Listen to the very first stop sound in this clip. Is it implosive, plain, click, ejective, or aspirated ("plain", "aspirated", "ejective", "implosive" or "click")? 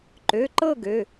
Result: click